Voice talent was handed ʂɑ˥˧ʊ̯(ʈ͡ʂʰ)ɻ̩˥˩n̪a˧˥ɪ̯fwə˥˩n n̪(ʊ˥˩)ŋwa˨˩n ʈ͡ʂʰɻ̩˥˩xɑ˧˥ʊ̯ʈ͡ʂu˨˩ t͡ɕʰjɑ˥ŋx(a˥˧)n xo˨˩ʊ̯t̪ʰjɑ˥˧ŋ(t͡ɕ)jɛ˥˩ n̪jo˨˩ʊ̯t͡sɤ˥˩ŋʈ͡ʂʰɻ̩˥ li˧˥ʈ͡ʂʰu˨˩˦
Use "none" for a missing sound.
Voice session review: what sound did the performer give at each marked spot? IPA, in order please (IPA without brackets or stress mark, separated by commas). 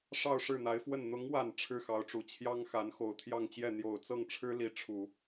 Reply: ʂ, ʊ˧˥, a˧˥, t͡ɕ